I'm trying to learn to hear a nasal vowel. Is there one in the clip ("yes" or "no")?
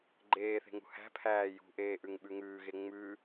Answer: no